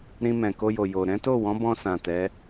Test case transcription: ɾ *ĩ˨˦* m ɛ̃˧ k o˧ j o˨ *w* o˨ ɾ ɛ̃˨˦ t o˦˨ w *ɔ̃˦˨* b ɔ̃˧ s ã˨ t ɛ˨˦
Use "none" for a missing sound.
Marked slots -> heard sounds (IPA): ĩ˦, j, ɔ̃˨˦

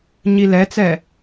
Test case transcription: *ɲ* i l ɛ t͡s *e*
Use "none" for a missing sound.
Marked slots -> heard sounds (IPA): ɲ, ɛ

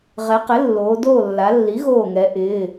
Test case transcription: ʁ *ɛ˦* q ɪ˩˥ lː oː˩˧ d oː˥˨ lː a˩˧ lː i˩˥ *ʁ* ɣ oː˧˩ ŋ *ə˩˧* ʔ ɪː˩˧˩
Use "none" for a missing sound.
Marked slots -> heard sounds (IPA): ɛ˩˧, none, ɛ˩˧

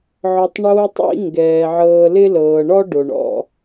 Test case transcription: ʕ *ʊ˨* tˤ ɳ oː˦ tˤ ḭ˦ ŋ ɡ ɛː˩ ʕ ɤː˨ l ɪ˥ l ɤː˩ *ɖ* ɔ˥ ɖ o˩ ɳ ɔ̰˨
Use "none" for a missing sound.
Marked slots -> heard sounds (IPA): ɔ˨, ɳ

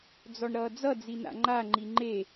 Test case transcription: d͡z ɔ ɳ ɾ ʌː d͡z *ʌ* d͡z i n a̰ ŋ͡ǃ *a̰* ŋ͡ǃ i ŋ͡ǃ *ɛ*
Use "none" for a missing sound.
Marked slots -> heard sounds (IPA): ʌ, a, e

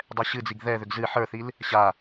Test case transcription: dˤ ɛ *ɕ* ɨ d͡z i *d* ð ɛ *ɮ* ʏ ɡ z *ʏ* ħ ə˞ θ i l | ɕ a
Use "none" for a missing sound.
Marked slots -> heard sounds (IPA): ɕ, ɡ, ð, ɨ

